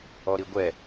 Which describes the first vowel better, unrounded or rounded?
rounded